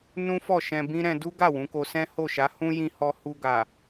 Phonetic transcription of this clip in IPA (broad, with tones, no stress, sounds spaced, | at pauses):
n ũ˦ f ɔ˦˨ ʃ ɛ̃˧ b ĩ˦ ɾ ɛ̃˧ d u˦ ɡ a˦˨ w ũ˨˦ k o˧ s ɛ̃˦ h o˦˨ ʃ a˨˦ h ũ˦ j ĩ˧ h ɔ˧ h u˧ ɡ a˨